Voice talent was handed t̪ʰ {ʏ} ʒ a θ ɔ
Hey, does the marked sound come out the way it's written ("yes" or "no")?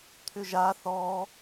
yes